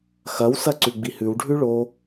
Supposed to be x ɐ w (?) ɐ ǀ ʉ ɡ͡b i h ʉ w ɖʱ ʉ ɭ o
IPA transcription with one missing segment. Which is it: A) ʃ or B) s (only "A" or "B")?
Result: B